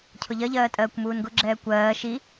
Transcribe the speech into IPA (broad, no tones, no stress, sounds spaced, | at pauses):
cʰ ʊ ʎ ɜ ʎ ɜː tʼ ɜː kʷ m uː n ɡ ʊ ɡ͡ǁ ɛː kʷ ɜː ʃ i